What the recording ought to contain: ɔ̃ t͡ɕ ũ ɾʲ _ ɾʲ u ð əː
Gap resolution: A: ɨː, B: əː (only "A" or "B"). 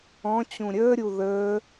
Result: B